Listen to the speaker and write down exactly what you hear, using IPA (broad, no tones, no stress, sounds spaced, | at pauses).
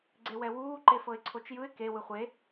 ɡ͡ǀ e w ɛ w uː ǃ e f ɤ ɪ̯ ǀʰ o t͡ʃ j ɯ ɪ̯ k e w ɯ χʷ e